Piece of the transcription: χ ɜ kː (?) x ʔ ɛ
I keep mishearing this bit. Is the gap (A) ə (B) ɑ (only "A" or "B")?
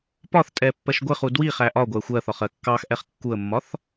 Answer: B